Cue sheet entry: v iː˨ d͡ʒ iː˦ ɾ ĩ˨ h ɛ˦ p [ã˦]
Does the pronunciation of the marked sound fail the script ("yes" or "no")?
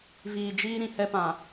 yes